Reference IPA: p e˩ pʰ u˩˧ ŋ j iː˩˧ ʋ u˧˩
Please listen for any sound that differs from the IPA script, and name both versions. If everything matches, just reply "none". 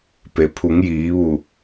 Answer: none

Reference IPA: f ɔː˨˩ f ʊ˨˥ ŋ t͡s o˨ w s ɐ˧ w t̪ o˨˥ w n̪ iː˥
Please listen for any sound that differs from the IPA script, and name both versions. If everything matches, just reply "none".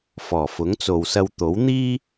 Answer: none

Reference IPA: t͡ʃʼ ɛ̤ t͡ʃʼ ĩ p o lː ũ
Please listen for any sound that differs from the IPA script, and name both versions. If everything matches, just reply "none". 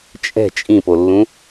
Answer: none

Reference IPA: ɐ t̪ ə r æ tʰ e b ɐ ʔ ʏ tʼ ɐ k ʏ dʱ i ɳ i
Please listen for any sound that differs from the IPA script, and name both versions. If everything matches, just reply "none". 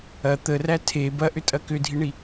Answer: none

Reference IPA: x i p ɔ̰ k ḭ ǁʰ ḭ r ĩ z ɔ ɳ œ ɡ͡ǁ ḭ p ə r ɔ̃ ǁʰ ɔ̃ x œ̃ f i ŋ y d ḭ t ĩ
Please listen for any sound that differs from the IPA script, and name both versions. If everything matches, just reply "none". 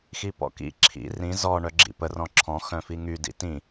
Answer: none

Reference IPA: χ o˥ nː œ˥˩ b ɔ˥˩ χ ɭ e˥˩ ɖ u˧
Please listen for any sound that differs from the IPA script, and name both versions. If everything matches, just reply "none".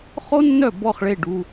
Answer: none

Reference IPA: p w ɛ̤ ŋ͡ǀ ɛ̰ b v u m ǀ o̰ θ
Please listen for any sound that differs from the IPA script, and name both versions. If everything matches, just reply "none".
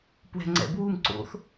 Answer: v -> w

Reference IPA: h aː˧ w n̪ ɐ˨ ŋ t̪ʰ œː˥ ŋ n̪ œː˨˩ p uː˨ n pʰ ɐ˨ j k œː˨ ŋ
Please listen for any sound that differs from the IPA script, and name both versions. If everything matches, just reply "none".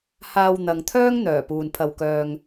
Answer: j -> w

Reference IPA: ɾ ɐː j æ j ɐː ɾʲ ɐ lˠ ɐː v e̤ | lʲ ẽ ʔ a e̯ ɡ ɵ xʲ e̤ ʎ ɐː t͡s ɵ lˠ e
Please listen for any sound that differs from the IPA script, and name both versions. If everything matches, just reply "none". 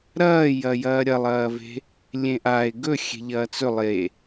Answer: æ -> ɐ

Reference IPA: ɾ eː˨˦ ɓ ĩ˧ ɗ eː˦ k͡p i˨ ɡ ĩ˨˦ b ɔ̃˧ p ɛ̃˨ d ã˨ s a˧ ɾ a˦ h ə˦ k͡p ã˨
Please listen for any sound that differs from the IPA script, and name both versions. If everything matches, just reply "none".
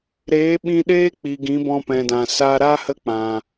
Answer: none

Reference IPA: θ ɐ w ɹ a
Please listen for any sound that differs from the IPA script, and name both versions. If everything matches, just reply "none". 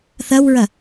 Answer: a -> ɐ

